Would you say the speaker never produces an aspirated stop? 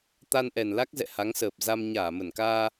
yes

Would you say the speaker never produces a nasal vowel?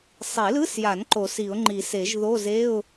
yes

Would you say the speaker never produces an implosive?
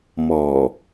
yes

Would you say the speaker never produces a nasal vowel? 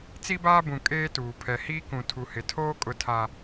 no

